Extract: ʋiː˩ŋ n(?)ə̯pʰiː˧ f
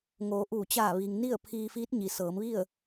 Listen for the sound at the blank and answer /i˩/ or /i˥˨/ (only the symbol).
i˥˨